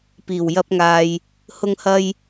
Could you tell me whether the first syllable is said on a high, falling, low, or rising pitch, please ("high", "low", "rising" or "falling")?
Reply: low